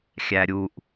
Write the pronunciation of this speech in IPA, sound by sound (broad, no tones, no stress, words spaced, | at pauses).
xʲæɾʲuʔ